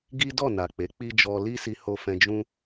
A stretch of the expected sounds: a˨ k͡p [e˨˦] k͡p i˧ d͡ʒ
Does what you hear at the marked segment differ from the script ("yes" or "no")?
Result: no